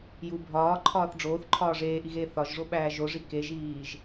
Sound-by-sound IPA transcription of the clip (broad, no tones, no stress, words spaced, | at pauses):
ju bʱɒːǃʰɒːθ ɖ͡ʐoːθǃʰɒː ʐeːʔiɣeː θɒʒʐoɓæː ʒoʐi keʒiːʒ